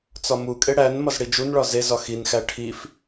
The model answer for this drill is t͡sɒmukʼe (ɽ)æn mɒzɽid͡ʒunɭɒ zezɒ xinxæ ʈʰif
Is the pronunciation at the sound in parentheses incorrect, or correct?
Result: correct